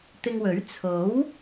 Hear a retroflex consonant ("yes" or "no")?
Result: no